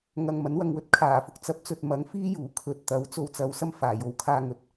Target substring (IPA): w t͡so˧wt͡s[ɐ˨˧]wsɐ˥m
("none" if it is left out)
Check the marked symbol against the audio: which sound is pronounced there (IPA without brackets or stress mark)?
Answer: ɐ˨˧